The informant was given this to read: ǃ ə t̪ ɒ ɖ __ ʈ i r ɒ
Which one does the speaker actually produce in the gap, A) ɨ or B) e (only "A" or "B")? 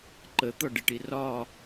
A